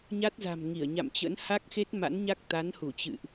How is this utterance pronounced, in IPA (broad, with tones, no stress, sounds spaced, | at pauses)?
ɲ a˦˥ t̚ z a̤˨˩ m ŋ i˧˩ ə̯ ɲ a̰˧˨ m t͡ɕ ə̰˧˥ n h a˦˥ k̚ x e˦˥ t̚ m a̰˧˥ n ɲ a˦˥ k̚ t̪ a˨˦ n h u˧˩ t͡ɕ ɨ̰˧˨ ʔ